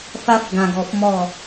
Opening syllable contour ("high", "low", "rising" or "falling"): high